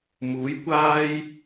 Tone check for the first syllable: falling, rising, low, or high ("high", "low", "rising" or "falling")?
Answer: rising